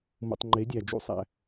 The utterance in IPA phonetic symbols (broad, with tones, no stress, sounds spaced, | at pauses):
m ṵ˨ tˤ ŋ͡ǃ e˨˦ dʲ æ˨ d͡ʒ ṵ˦ sˤ æ̰˧